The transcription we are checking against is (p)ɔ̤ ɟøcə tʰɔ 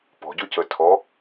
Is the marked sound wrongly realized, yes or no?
no